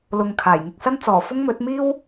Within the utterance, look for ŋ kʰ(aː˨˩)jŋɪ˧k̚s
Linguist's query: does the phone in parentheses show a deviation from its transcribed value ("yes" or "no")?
no